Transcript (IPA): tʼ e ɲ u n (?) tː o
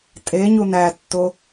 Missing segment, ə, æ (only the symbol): æ